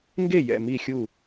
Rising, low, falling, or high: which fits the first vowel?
falling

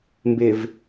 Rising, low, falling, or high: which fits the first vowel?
low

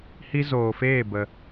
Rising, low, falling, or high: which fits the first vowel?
high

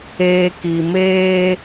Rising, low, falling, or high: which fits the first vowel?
low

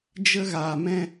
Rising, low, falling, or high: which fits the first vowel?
high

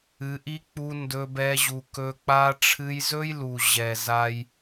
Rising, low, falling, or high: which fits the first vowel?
rising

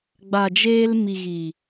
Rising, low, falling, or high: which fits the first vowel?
low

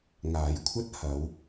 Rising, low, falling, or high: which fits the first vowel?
low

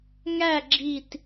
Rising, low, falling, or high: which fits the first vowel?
falling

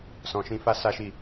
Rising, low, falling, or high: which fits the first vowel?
low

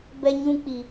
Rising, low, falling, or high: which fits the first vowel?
high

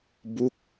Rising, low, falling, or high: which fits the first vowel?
falling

